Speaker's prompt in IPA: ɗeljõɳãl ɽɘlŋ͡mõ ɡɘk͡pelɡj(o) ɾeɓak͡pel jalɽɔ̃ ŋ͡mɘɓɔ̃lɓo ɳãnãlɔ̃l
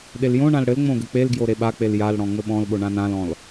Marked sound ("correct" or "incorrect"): correct